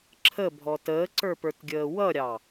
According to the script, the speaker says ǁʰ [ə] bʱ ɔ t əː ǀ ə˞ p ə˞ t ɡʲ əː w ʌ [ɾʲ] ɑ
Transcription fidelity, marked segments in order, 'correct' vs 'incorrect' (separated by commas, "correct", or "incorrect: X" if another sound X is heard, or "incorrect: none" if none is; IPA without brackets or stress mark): correct, correct